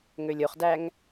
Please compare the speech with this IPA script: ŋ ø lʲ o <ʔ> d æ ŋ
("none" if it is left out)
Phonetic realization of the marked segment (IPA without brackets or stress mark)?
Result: χ